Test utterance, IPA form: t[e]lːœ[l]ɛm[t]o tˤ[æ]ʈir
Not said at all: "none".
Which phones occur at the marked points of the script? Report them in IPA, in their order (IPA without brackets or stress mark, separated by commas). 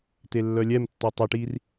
e, lʲ, tː, ɛ